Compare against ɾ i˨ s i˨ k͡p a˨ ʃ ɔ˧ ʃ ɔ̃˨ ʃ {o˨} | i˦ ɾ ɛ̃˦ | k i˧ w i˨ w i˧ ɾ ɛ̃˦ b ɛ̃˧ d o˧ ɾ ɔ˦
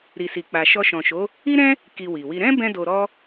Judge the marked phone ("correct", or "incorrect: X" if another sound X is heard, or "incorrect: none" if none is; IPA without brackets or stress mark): incorrect: o˨˦